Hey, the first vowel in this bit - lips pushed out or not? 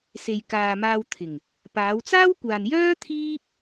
no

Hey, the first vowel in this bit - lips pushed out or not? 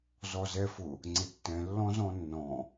yes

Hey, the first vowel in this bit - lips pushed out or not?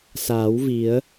no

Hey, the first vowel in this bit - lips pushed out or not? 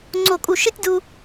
yes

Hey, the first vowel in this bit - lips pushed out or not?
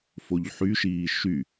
yes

